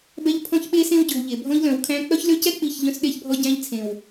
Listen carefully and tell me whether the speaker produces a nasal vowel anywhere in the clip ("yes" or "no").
yes